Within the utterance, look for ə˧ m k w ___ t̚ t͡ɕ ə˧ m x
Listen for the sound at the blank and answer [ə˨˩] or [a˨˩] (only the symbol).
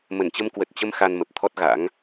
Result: ə˨˩